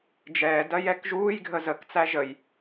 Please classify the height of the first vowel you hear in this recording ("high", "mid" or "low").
mid